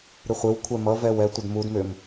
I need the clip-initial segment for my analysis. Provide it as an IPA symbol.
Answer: ɾ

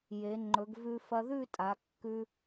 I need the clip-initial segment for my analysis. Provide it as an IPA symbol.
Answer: j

